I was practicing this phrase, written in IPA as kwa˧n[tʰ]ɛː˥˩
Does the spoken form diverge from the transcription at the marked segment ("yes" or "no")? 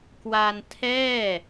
no